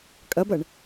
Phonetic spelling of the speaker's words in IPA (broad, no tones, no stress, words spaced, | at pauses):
kʼɐbɐɳ